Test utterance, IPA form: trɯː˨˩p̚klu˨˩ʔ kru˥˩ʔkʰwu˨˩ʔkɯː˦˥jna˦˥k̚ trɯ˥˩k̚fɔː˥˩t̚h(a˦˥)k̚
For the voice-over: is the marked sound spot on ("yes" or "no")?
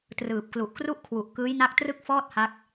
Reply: yes